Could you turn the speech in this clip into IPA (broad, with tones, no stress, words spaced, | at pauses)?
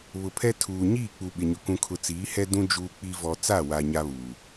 βʊ˨pʰɛ˦ tʰuː˨ ɲiː˦˨k͡pu˨ɓɪ˨ɲʊ˨ kũ˨kʰʊ˨ t͡siː˨˦hɛ˦ dũ˦ d͡ʒuː˦k͡pi˦ vɔ˦ t͡sa˦˨wa˨ ɲa˦βuː˨